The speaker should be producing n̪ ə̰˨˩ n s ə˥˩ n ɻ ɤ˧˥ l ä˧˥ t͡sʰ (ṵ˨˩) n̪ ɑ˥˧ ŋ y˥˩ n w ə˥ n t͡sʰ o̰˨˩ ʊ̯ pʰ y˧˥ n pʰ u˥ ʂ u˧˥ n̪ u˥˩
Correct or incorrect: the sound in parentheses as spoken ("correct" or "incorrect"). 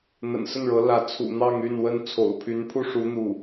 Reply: correct